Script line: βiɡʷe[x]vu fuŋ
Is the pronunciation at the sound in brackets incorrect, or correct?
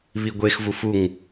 correct